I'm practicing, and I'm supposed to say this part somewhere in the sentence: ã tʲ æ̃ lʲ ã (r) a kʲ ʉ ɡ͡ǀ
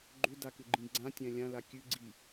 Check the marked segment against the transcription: incorrect: l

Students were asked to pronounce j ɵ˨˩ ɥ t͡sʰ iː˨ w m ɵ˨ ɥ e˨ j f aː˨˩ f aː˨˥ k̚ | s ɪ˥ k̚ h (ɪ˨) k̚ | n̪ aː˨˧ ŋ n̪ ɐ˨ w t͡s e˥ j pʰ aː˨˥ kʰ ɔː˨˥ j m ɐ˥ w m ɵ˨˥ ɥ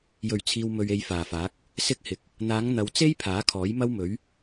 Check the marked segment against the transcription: correct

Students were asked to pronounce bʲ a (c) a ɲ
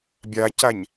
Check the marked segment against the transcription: correct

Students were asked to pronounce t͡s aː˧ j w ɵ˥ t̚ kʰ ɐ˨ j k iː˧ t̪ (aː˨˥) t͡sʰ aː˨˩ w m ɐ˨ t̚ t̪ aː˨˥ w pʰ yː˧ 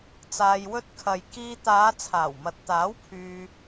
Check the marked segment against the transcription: incorrect: aː˨˧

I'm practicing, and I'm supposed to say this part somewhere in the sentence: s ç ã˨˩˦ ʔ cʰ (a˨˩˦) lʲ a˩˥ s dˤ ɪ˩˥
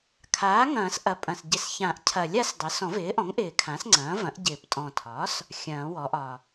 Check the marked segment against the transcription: incorrect: ɐ˨˩˦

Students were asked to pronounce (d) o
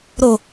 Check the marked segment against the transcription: incorrect: ɾ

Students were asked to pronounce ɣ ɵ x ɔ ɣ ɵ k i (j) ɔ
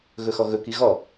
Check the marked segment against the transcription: incorrect: ɣ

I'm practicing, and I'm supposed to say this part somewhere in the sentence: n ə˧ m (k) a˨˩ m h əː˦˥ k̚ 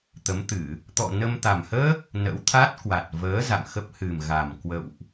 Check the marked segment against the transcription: incorrect: t̪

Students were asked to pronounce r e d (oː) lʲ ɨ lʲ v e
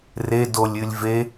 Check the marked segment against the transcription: incorrect: o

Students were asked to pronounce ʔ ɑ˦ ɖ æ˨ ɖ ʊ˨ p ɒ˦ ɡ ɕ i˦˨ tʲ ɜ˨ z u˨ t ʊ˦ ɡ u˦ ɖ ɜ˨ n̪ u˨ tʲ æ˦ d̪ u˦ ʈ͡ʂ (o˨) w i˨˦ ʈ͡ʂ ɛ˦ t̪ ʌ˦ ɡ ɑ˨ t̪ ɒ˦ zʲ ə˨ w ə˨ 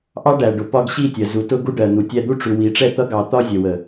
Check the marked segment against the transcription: incorrect: u˨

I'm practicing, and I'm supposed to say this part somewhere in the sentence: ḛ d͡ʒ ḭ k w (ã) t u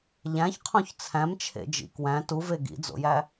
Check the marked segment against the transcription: incorrect: æ̃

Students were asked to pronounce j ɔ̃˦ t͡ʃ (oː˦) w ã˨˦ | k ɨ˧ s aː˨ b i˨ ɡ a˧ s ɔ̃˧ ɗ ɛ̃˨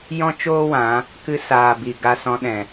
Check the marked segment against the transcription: correct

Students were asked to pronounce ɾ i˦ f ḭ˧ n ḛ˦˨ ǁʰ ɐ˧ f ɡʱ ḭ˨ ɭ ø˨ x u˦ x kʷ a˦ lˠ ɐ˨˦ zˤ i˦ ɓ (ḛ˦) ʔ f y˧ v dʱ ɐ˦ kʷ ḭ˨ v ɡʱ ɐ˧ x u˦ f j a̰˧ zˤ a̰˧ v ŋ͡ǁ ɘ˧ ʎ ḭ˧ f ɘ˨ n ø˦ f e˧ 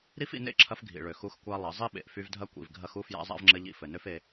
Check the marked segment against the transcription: incorrect: ḛ˨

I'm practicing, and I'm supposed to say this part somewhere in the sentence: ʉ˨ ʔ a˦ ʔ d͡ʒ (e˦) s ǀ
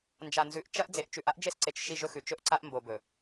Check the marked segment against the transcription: correct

